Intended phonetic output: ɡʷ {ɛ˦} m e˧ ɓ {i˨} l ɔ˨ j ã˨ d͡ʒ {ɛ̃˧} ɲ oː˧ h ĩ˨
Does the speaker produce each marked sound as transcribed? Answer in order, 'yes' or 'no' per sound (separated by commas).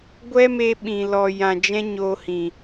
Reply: yes, no, no